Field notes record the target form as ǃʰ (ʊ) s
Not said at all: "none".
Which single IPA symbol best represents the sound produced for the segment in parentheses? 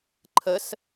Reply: ə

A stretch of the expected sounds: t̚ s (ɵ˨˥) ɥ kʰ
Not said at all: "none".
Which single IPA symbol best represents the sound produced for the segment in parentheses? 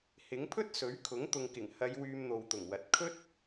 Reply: ɵ˨˥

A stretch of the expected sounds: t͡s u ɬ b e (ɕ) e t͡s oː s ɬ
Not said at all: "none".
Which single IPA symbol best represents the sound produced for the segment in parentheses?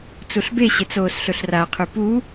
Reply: ɕ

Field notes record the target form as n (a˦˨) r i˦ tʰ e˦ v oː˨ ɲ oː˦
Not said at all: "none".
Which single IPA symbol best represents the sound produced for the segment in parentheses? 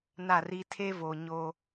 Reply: a˦˨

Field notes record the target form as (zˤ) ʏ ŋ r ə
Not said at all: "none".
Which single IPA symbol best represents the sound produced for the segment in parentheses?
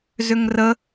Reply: z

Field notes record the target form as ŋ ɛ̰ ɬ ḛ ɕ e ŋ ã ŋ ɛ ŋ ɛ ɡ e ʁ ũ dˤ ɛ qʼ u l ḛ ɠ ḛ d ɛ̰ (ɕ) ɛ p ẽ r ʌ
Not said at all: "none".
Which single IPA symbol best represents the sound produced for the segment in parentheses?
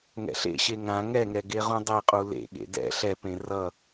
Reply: ɬ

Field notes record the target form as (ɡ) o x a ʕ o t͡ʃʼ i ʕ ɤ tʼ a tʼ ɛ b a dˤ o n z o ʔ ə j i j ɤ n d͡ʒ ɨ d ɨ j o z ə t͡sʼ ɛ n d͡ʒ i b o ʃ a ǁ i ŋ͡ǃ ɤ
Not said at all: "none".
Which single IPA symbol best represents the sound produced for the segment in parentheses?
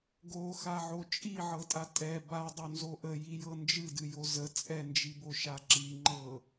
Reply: ɡ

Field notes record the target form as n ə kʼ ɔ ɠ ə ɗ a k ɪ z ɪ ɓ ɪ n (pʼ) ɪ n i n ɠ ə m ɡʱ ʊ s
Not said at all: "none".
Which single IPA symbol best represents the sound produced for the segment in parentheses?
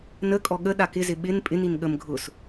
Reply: pʼ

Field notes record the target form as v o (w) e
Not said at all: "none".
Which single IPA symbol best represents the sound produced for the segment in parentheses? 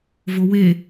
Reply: w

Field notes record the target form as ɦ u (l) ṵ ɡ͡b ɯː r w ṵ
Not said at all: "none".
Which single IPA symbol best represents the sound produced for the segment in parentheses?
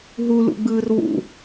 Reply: l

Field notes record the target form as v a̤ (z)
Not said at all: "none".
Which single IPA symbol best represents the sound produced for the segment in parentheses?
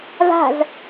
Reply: z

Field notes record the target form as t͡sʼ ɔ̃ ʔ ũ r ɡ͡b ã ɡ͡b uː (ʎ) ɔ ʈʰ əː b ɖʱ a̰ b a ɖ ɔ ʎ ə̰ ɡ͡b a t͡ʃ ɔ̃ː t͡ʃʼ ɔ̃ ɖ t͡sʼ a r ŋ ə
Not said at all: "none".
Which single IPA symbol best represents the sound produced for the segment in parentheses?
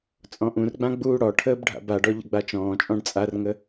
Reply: ɽ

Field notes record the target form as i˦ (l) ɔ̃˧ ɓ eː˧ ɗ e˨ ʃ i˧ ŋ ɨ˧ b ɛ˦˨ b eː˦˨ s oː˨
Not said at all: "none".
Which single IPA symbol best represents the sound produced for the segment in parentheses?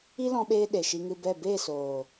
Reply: l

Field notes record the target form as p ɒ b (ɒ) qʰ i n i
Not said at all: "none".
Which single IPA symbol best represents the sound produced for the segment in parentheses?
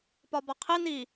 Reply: ɒ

